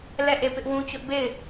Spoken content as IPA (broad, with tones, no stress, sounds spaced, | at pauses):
l ɛ˦˨ ʔ e˦˨ p ɪ˦ ʔ w ũ˦ t͡ɕ ʊ˦ ʔ b e˦˨ ɪ̯